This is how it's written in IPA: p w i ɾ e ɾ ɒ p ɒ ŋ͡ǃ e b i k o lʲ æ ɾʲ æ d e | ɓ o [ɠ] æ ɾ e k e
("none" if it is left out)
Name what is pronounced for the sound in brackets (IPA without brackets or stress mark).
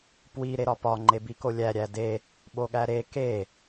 ɠ